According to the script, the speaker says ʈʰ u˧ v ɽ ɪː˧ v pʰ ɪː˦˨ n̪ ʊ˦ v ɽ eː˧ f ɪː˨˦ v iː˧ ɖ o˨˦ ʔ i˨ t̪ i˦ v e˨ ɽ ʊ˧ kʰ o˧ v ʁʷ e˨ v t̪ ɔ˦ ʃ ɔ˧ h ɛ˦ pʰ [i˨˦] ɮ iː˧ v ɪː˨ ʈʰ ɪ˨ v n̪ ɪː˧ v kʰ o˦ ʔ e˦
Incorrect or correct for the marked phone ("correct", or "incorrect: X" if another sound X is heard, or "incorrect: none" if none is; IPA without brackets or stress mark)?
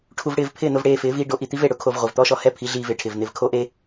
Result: correct